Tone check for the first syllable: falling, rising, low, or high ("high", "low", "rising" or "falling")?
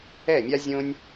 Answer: falling